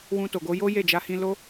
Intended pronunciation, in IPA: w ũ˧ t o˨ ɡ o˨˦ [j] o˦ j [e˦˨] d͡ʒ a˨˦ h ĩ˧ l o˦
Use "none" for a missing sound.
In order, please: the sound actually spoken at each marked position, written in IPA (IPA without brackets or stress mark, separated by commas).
j, e˦˨